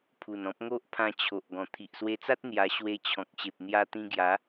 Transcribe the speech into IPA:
pʰu˨˩nɔ̃˦p̚ ŋo˦ʔpʰã˧ t͡ɕʰo˨ʔ ɡɔ̃˨˩t̪ʰi˨ʔswe˧t͡sa˦t̚ n̪ja˧ ɕwe˧t͡ɕʰɔ̃˨k̚ ɕe˨p̚n̪ja˧t̪ĩ˧ɡja˨˦

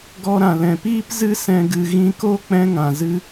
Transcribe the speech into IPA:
ɡɔ˧ɾã˨lɛ̃˨piː˦p zɨ˧sɛ̃˨ɡɨ˨ ɣĩ˧ko˦ k͡pɛ̃˧ŋã˨ zɨ˧

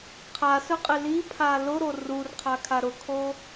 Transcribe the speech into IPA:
qʰasœqʼe lipʰa lʊɾo rurqʰakʰa ɾʊkʰo

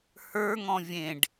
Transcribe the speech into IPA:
hə˞ŋ ɔ̃vʲẽɖ

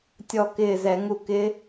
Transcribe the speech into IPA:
tʲɔ˦˨kɪː˦˨zɛ˧˩˧ŋu˦˨ kɪ˦˥

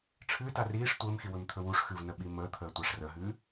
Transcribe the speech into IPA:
ʈ͡ʂʰɨːta riːʂ tʷəːmxi wɵmt̪ʰɵwuʂxɨv nəɓiməːt̪ʰəː tʷaʂrəɦɨː

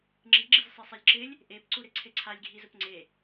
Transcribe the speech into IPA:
ŋ͡ǁiɡ͡ǁiz sˤesˤelʲǁɪlʲ | ʔepǀuɾɪ ǀʰeǀʰalʲɡʱizʊp ŋ͡ǀe

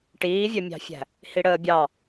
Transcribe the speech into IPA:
ʈiːvʲœmʲɑ̤fʲæ̤ | hiɽəːbʲɑ

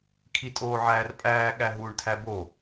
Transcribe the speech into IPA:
kʰitʼoːʕæːrpʼæː ɠæɦuːɳtʰæbo

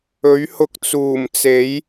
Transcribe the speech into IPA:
ɵ˨˥ɥhʊ˧k̚t͡suː˨˩mt͡se˨˥j

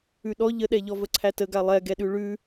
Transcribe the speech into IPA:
ʉɗɔ ʎəɗɛʎɔ vəǀʰætəɡa lˠɛɡɛɗʉ ɭʉ

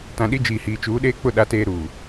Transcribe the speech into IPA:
tã˨ɗi˦ d͡ʒiː˨hiː˨t͡ʃuː˨˦ ɗeː˦k͡pʊ˦˨ ɗa˦teː˦ ɾuː˨

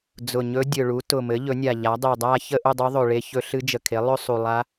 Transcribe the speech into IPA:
d͡zʊ˨˩ɲɵ˧˥ dʲɵ˨˩ɭu˩˥ tʊ˨˩mɘ˩˥ ʎɵ˩˥nʲa˨˩ʎa˩˥ dˤe˨˩dˤa˥˧ çə˥˧ʔʊ˥˧dˤɵ˧˥ ðˤɵ˨˩ɭe˧˥çɵ˧˥ ɬɨ˧˥d͡ʒə˨˩kʰe˩˥ lˠɵ˥˧ sˤu˨˩lˠa˧˥

